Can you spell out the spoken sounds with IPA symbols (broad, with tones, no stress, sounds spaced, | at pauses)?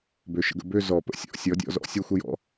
b ø˨˥ ʃ ə̰˨˥ ɡ ə̰˨˩˦ b ø˥˧ z ɔ˨˩˦ p ə̰˨˥ sʲ ɔ̰˨˩˦ sʲ ɔ˨˥ dʲ ɔ̰˨˩˦ z ɔ̰˨˩˦ sʲ ɔ˥˧ xʷ ə˥˧ j ɔ̰˨˥